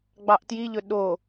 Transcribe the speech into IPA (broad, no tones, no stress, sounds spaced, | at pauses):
ɡ͡b ɑ ʔ t j i ʎ ɵ ɗ o